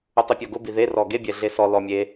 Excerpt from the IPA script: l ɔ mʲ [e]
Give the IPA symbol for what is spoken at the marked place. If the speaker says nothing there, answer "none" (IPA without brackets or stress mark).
e